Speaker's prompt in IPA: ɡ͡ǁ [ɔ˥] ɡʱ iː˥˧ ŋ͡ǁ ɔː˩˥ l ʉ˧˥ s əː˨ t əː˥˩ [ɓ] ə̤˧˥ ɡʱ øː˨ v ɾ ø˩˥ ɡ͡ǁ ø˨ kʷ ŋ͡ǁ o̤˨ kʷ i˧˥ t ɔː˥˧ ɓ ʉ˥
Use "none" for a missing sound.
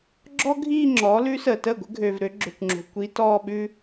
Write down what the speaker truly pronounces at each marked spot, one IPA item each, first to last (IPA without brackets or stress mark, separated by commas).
ɔ˥, ɡʷ